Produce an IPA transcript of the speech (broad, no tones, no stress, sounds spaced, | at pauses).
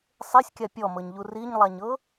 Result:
sˤ e sʲ kʲ a pʲ ɔ m ɤ ɲ ʎ u r i ɲ lˠ a ɲ ɤ